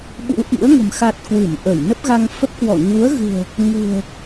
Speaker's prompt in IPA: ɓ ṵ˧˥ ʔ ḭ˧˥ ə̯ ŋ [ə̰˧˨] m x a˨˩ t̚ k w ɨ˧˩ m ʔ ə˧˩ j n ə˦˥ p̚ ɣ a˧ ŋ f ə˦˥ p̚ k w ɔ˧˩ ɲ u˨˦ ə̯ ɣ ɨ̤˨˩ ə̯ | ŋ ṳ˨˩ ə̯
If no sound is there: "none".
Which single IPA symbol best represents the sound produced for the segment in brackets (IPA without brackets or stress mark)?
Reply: ə̤˨˩